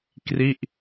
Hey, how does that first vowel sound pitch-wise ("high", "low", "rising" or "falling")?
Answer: falling